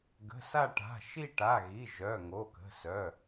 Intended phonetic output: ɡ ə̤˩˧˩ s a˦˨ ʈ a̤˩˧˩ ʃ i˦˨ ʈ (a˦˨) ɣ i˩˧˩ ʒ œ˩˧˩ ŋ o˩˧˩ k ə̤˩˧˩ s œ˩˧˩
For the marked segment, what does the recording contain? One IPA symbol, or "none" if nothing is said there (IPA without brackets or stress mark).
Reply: a˩˧˩